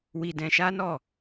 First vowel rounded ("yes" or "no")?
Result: no